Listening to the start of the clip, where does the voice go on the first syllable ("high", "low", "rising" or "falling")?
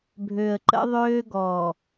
low